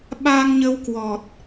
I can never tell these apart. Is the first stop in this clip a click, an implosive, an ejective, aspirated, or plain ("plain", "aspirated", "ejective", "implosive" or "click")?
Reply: implosive